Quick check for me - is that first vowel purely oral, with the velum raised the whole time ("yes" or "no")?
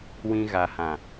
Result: no